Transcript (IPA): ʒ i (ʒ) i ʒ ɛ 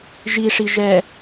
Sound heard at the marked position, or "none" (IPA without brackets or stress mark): ʂ